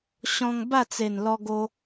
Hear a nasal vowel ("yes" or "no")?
yes